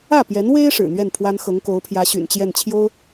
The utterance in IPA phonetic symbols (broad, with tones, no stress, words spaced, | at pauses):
ä˥˩pjɛ˧˥n we˥ɪ̯ ʂɻ̩˨˩n̪ɥɛ˥˩npʰwa˥n xɤ˧˥ŋko˧˥ʊ̯pʰjä˧˥ ɕy̰˨˩nt͡ɕjɛ˥˩nt͡ɕʰjo˥ʊ̯